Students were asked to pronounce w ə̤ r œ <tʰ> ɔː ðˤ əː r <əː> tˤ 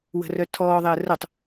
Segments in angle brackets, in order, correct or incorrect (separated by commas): correct, incorrect